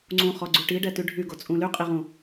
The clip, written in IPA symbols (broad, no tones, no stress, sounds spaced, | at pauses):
ŋ͡ǀ ũ χ ɔ ɡ͡ǀ y ʈ i ɖ ɛ t y ɖʱ y ɡ o t͡sʼ ũ l y qʼ i ʁ ũ